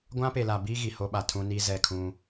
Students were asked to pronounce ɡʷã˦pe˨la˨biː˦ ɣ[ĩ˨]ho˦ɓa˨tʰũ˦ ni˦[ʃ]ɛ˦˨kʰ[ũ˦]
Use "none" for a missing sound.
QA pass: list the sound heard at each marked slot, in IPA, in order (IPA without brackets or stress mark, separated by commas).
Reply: i˨, z, ũ˦